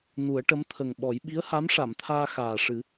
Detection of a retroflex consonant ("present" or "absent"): present